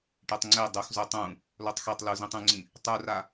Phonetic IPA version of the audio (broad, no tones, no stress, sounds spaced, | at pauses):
ʈ e tˤ ŋ͡ǀ e dˤ u x z o tˤ ũ | l o tˤ x ɛ tˤ l u z ĩ tˤ ũ ŋ͡ǀ ĩ | tˤ u r a